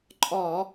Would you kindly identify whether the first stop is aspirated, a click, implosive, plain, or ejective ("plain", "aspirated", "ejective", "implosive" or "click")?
click